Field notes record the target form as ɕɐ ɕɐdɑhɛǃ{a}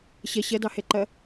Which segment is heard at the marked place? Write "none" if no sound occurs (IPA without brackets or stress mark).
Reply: ɐ